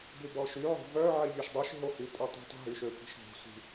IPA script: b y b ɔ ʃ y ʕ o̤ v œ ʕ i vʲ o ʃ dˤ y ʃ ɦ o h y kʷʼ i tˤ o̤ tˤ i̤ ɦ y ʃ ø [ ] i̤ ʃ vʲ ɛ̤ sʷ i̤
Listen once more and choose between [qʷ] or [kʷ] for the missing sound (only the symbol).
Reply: kʷ